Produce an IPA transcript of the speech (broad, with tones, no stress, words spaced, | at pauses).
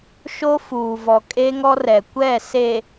ʃo˦ fuː˨vɔ˨ kʼe˦ŋɔ˦rɛ˨ kʷɛ˦˨ se˨